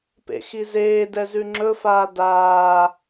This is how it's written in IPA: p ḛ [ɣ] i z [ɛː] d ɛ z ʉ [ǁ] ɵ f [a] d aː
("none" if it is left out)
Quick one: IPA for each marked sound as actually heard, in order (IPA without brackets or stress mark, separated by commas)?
x, eː, ŋ͡ǁ, aː